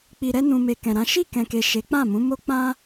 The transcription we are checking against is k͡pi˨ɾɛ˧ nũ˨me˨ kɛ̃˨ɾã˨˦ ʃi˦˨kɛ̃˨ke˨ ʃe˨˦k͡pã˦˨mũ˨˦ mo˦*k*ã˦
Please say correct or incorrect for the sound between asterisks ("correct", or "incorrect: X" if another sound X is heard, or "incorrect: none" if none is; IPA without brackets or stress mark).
incorrect: k͡p